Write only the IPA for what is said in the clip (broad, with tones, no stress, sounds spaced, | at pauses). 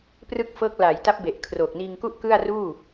p r ɯ˥˩ k̚ f ɤː˦˥ k̚ l aː˩˦ j t a˦˥ p̚ b e˨˩ ʔ kʰ r oː˨˩ k̚ n iː˧ ŋ k u˥˩ ʔ k ɯ˥˩ a̯ r uː˥˩